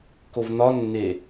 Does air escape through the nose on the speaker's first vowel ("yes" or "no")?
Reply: no